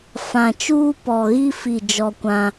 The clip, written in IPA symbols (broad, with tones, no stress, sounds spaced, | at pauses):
f ã˨ t͡ʃ uː˦ p ɔ˨ ɣ i˦ f i˦˨ d͡ʒ ɔ˦ kʷ ã˦